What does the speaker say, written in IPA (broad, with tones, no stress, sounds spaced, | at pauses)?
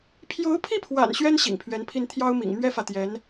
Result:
pʰ j o˧˥ ʊ̯ pʰ i˥˩ pʰ w a̰˨˩ n ɕ ɥ ɛ˥ n ɕ ḭ˨˩ ŋ pʰ ɥ ɛ˧˥ n pʰ i˥˩ n t̪ʰ j ɑ˥ ʊ̯ m ḭ˨˩ ŋ m ɥ ɛ˥ f ä˨ t̪ j ɛ˧˥ n